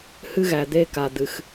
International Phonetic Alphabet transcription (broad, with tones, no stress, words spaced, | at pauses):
hɨ˦ɣæ˨d̪e˦ ka˨d̪ɨ˨x